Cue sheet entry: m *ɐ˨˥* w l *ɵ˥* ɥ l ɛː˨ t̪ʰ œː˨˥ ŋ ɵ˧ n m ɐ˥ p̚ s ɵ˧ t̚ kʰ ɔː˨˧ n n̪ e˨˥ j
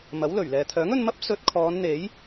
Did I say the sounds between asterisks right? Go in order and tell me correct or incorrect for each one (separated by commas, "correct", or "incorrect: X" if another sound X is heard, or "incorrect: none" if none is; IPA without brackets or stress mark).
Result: correct, incorrect: ɵ˨˩